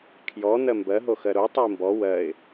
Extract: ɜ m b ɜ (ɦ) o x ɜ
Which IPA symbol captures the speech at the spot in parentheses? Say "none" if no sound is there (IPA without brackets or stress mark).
ɦ